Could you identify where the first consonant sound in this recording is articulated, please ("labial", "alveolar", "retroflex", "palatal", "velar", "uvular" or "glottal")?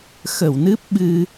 velar